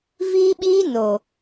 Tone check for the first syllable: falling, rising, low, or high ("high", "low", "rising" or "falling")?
high